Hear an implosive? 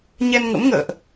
no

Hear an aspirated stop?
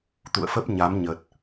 no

